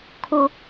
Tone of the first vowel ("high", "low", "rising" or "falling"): high